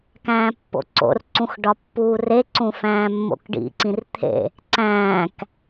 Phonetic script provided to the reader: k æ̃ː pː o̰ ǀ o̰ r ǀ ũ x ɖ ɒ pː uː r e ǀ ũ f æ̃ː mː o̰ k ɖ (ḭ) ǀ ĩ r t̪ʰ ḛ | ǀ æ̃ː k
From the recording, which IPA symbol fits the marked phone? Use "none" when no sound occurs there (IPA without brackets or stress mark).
ḭ